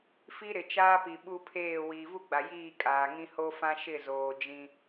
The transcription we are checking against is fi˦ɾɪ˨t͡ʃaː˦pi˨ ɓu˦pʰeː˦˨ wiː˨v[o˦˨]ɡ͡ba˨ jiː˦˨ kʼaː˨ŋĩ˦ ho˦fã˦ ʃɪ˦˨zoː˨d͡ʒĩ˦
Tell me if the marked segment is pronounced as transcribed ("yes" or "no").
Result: no